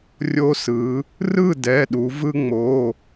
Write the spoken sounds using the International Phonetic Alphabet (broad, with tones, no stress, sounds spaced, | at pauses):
rʲ o˧ s ɯ˩˧ | r ɯ˥˩ d ɛ˩˧˩ ɗ u˩˧ v ɯ˧ ŋ͡m o˩˧˩